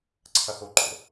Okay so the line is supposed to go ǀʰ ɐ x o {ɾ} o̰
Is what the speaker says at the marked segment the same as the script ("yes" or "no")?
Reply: no